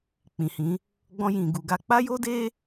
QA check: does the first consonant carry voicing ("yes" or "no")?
no